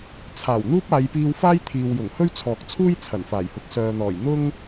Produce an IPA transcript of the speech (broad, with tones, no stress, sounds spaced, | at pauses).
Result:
t͡sʰ aː˨˩ w n̪ uː˥ p̚ aː˨˧ j p iː˧ w f aː˥ j t̪ʰ iː˨ w j ʊ˨˩ ŋ h ɵ˥ ɥ t͡sʰ ɔː˨ k̚ t͡sʰ uː˥ j t͡sʰ ɐ˨˩ n f aː˨˩ j h ʊ˨ k̚ s œː˨ n̪ ɔː˨˩ j n̪ ʊ˥ ŋ